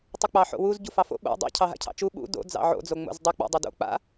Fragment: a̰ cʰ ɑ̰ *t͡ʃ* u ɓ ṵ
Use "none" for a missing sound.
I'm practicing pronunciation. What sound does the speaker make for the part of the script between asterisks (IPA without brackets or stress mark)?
t͡ʃ